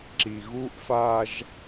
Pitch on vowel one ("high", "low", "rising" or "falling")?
low